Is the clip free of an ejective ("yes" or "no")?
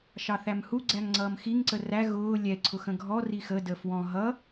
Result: yes